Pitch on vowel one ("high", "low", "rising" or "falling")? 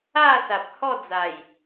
falling